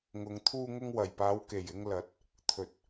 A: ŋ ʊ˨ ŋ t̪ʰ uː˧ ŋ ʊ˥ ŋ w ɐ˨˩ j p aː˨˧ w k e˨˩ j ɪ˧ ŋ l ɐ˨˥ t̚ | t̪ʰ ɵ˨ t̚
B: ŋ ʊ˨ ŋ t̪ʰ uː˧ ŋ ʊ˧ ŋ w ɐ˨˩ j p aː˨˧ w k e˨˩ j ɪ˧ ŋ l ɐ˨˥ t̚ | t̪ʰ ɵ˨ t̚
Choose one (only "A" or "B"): B